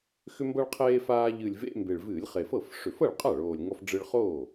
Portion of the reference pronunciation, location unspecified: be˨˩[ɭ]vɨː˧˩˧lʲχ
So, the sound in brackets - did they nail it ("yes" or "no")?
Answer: yes